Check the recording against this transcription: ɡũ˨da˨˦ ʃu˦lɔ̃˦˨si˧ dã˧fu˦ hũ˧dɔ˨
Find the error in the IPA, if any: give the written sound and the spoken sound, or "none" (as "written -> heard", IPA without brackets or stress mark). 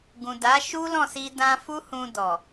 none